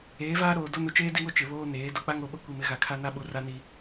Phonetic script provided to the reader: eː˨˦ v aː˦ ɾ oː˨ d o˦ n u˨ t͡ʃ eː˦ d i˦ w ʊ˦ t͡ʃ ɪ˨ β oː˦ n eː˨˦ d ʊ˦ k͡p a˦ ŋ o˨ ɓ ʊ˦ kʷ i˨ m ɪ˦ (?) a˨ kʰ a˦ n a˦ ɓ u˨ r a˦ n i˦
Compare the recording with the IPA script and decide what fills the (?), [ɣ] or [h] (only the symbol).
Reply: ɣ